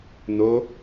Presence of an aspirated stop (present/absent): absent